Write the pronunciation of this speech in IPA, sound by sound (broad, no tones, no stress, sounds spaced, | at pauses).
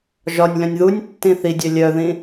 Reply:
ʒ ɒ nʲ l œ̃ nʲ ð u nʲ tː ĩ θ i dʲ œ lʲ œ ð ĩ